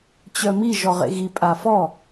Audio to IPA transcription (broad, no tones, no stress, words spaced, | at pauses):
t͡ɕœmi ʒɔʁḛɣi pʼafɔ